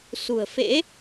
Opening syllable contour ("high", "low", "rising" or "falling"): low